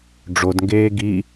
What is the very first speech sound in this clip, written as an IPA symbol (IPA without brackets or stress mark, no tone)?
ɖ͡ʐ